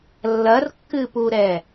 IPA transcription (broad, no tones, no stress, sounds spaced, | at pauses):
lː ɐ r kː ɨ p u ɾ ɛ